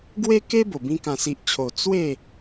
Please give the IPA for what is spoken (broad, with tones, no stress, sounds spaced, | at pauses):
ɡ w e˦ k e˦ b o˨˩ b ĩ˧ k ã˨˩ s i˨ ʔ t͡ɕʰ o˨˩ t͡s w e˥˧